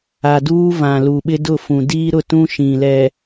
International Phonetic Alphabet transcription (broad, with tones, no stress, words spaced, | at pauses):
a˨duː˦vã˨ lu˨ɓɪ˦dʊ˦˨fũ˨ diː˦ɾʊ˦˨tũ˦ ʃĩ˨lɛ˨